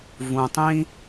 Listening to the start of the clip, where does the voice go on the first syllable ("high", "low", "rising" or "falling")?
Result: low